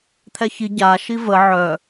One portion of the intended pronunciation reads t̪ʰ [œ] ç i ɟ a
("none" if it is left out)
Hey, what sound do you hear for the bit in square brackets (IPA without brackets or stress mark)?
ɛ